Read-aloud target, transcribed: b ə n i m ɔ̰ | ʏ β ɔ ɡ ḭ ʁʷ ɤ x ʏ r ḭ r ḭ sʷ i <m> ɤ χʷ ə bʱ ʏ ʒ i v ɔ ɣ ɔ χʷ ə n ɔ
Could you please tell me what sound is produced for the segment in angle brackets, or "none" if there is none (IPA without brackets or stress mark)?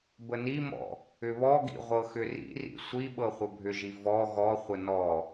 ɓ